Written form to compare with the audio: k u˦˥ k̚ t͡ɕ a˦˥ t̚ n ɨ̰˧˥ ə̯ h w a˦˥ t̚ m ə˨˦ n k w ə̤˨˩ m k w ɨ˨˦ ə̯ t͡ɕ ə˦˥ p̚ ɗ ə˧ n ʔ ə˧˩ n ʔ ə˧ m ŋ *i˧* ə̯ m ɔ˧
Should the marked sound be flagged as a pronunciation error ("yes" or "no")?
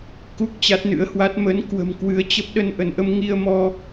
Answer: no